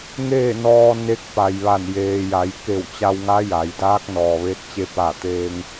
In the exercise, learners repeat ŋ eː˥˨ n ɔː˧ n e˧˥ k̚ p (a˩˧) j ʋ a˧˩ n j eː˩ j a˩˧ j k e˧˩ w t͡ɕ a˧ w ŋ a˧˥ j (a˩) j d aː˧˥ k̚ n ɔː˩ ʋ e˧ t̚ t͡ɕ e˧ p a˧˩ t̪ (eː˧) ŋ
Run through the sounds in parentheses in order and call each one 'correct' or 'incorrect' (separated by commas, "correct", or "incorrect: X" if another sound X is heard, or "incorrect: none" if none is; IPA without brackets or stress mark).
incorrect: a˩, incorrect: a˩˧, correct